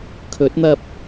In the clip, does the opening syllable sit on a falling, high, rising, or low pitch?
rising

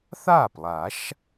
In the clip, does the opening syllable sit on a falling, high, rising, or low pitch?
falling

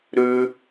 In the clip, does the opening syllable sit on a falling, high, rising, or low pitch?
high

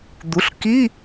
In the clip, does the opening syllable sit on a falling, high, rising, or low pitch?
rising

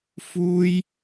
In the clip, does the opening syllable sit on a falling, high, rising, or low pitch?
high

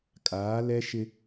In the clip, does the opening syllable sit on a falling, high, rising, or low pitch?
rising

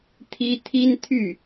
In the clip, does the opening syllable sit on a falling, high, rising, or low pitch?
high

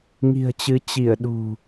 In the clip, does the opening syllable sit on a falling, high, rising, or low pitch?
low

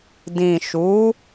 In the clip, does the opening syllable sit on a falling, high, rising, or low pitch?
low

